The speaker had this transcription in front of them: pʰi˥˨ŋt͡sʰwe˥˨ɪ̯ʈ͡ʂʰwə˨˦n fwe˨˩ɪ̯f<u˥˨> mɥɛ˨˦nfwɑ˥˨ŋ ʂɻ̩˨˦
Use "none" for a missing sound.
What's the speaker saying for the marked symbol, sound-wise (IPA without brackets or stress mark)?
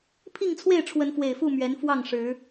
u˥˨